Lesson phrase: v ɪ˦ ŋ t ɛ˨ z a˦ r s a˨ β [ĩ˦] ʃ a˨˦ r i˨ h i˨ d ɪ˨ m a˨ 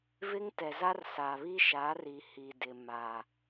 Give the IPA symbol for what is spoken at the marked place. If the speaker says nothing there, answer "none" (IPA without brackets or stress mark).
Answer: i˦